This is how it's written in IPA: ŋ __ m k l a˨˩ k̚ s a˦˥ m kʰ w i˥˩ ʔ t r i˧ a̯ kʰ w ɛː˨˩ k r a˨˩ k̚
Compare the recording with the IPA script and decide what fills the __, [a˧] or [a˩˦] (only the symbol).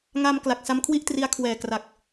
a˧